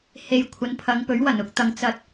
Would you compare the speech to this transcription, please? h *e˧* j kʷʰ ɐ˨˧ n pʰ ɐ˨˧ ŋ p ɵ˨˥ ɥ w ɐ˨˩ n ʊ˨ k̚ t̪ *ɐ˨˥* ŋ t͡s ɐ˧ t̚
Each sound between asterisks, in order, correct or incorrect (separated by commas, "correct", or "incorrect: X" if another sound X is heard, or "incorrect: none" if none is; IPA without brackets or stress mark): incorrect: e˨, incorrect: ɐ˨